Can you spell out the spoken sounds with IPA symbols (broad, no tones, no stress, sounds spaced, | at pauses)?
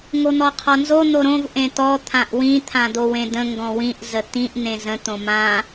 ŋ o n̪ ɔ qʰ ɔ n z o n̪ o ɾ õ v ʔ ẽ t̪ ɔ t̪ʰ ã ʔ w ĩ t̪ʰ ã d̪ o w ẽ d̪ ə̃ ŋ ɡ ɔ̃ w ĩ ʔ z ə t̪ ĩ ʔ n̪ ẽ z ə̃ t̪ õ m ã